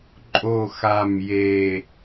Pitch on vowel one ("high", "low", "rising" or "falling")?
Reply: low